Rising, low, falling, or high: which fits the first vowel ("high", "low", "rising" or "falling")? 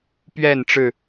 falling